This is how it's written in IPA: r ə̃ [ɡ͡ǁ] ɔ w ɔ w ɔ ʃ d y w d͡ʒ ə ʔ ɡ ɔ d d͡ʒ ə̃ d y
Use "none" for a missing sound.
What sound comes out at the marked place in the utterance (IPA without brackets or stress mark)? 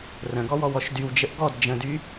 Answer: ɡ